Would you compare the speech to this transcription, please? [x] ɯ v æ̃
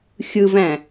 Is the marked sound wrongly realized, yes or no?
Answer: yes